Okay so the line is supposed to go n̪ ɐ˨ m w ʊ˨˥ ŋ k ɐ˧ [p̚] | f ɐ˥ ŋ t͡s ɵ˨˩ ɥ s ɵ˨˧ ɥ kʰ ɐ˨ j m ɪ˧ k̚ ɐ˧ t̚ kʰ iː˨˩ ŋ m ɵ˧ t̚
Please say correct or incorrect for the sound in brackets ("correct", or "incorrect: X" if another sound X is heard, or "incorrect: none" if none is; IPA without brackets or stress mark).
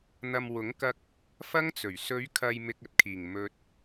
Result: incorrect: k̚